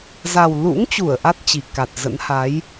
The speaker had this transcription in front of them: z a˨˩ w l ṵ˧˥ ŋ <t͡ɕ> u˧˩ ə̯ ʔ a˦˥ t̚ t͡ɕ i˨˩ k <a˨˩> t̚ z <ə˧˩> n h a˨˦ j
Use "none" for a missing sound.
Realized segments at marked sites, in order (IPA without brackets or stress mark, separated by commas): t͡ɕ, a˨˩, ə̰˧˥